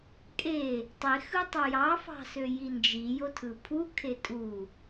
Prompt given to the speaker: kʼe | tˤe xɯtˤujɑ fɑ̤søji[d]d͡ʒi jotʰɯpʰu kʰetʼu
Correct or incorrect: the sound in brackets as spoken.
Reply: incorrect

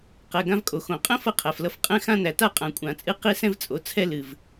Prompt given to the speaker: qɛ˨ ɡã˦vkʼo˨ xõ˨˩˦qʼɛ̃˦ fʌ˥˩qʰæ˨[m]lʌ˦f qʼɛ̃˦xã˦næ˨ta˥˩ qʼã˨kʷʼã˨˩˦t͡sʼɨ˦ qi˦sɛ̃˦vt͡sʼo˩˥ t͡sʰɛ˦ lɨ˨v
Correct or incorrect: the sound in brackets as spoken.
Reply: incorrect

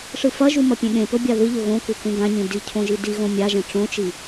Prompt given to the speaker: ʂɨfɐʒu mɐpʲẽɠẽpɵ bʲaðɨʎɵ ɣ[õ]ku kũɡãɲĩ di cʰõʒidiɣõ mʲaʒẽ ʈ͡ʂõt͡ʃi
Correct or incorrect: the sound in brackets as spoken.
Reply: correct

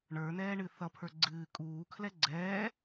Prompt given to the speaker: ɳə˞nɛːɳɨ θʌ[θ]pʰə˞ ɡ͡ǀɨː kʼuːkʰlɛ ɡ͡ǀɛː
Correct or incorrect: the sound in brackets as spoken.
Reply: incorrect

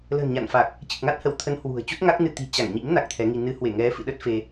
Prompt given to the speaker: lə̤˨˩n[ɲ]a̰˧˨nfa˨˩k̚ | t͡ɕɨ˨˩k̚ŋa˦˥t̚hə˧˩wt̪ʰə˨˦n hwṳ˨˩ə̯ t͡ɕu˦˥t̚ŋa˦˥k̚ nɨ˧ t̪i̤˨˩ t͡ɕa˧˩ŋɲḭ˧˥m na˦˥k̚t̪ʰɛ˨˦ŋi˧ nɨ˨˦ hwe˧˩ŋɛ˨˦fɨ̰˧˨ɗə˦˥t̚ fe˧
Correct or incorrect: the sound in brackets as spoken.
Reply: correct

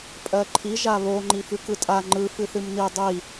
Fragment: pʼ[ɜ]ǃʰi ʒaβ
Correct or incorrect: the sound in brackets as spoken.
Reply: correct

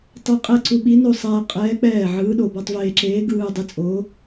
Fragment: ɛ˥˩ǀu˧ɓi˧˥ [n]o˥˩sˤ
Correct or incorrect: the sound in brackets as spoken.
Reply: correct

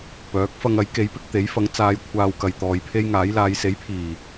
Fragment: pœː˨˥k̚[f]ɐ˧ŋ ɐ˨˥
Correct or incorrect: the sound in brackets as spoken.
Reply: correct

